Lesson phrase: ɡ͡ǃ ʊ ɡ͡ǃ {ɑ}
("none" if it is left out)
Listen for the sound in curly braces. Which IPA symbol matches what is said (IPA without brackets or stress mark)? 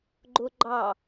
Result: ɑ